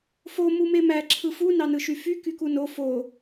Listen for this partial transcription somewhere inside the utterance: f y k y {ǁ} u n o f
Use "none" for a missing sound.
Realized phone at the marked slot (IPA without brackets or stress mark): k